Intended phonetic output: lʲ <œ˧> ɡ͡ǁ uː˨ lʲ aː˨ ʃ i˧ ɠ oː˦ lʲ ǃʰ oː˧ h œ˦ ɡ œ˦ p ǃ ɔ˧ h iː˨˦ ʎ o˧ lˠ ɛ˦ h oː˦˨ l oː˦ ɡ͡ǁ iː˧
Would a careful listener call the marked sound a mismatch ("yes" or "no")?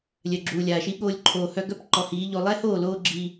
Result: yes